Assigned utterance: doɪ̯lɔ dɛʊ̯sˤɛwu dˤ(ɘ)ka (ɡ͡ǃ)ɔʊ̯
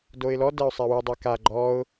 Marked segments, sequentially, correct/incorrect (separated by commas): incorrect, correct